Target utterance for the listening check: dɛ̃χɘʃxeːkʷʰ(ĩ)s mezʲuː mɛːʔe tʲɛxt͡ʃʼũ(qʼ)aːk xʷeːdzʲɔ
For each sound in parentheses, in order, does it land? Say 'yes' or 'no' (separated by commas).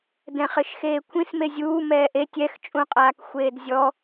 yes, yes